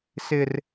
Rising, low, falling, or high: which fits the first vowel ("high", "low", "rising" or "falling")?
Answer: high